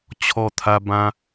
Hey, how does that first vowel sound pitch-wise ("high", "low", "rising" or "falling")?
high